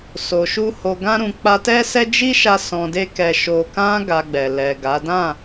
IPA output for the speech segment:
s o˨ ʃ u˧ h o˨ ɡ ã˧ ɾ ũ˨ k͡p a˧ t ɛ˦ s ɛ˦ d͡ʒ i˦ ʃ a˧ s ɔ̃˨ d e˧ k ɛ˨ ʃ o˨ k ã˧ ɡ a˧ ɡ͡b ɛ˨ l ɛ˨ ɡ a˨˦ d ã˦˨

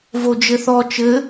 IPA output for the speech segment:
v o d͡ʒ ɘ θ ɔ t͡ʃ ɘ

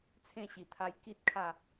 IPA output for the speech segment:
t͡sʰ ẽ˥˧ ɕ i˨˩ t̪ʰ a˧ j k i˦ t̚ kʰ a˥˧

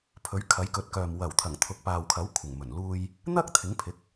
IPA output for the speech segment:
pʰ ɵ˨˥ ɥ kʰ ɐ˨˥ j k ɵ˨˥ t̚ k œː˨ m w ɐ˨˩ w t̪ʰ ɐ˨˩ ŋ t̪ʰ ʊ˨ k̚ p aː˨ w kʰ ɐ˨˥ w kʷʰ ɪ˨˩ ŋ m ɵ˨˩ n l uː˧ j | n̪ ɐ˥ k̚ t̪ʰ ɪ˨˥ ŋ pʰ ɪ˨˥ k̚

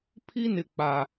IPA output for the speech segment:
pʰ i˦ n ɪ˨ k͡p a˨

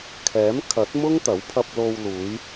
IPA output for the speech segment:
kʰ ɛː˨˥ m kʰ ɐ˨˥ t̚ m ʊ˥ ŋ t̪ ɐ˨˥ w pʰ ɐ˧ p̚ l o˧ w l uː˨˧ j

